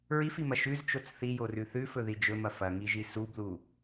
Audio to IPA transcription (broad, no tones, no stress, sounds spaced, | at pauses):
ɹ i f i m ɐ ʃ ʉ z t͡ʃ o t͡s θ i j o r ʉ θ ʉ f ɵ ð i d͡ʒ ɵ m ɐ f ɐ ŋ i ʒ i s u b l u